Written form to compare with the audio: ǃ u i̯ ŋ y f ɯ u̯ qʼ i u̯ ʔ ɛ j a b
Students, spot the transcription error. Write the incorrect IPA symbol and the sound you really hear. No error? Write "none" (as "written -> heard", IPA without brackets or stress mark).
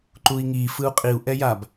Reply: y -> i